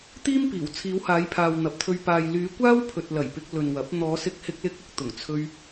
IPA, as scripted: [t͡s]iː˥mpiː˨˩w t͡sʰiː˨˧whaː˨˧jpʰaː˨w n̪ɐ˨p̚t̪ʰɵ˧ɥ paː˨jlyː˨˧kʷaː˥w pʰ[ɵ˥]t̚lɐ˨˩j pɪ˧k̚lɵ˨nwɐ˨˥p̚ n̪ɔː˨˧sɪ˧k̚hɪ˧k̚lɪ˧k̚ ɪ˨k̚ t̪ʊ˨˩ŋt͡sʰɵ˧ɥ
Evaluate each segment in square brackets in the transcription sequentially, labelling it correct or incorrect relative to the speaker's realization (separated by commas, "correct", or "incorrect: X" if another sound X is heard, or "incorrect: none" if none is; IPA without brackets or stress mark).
incorrect: t̪, incorrect: ɵ˨